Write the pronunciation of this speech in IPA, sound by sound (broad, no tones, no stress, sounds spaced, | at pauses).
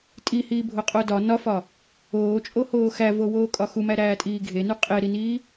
tʼ i h iː bʱ o qʼ o d ɒ n ɒ f ɒ | oː t͡ʃʼ o h oː x æ v o w oː kʼ ɒ x u m æ ɾ æː tʼ iː ɡʱ e n u qʼ e ɾ i n iː